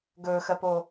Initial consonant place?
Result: velar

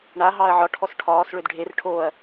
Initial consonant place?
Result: retroflex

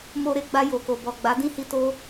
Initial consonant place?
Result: labial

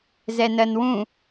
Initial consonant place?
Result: alveolar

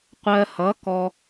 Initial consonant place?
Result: uvular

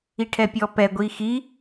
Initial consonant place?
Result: retroflex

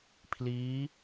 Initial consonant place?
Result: labial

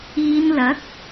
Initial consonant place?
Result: alveolar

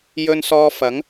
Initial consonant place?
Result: palatal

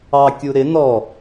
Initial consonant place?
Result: velar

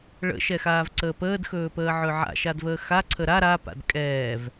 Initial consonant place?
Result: retroflex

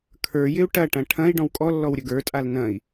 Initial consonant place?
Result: velar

